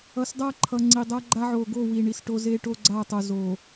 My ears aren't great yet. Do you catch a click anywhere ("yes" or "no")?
yes